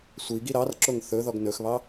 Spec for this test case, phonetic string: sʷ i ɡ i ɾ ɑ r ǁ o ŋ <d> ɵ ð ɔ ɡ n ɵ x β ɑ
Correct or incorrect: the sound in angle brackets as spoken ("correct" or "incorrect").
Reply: incorrect